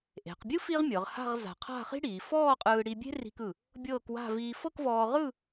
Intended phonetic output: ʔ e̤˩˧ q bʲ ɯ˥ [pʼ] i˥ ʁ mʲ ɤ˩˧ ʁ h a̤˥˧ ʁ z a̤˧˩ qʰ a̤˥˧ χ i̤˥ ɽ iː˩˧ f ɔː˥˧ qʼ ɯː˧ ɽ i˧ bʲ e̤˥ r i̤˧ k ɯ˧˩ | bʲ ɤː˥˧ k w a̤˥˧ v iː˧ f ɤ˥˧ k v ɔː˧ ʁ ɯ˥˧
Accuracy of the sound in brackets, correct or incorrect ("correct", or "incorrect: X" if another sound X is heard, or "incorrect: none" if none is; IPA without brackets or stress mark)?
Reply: incorrect: f